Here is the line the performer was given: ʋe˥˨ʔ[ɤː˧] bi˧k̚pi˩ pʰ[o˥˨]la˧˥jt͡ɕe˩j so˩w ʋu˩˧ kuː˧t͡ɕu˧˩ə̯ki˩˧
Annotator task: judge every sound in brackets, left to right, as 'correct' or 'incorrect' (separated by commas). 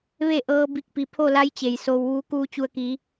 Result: correct, correct